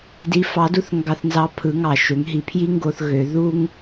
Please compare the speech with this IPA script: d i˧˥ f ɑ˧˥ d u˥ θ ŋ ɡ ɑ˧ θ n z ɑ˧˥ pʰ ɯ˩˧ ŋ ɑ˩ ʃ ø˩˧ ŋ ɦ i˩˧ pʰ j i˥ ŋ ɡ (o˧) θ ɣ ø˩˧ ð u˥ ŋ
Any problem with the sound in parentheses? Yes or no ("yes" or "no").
no